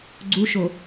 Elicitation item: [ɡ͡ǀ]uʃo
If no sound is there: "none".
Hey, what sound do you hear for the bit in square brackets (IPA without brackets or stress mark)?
ɡ͡ǀ